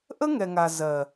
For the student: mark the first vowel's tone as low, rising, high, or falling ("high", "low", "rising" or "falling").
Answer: high